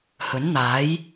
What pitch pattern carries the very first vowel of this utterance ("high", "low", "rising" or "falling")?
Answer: rising